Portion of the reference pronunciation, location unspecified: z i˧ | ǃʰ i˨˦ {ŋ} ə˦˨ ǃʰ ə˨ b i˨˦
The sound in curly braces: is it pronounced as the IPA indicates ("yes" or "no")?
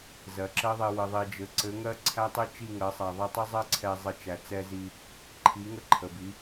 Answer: yes